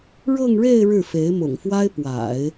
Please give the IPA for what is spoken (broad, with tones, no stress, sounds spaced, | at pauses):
ɻ ɤ˥˧ ŋ ɻ e˥˧ ɪ̯ ɻ ɻ̩˥˩ f e˧˥ ɪ̯ m ʊ̰˨˩ ŋ f w a˥ ɪ̯ p w a̰˨˩˦ ɪ̯